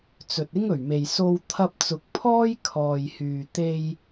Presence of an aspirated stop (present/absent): present